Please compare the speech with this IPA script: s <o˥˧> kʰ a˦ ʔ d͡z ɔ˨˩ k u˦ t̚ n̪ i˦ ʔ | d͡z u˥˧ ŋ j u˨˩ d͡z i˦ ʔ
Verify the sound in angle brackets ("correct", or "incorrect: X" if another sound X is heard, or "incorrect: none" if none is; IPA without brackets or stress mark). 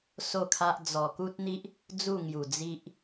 correct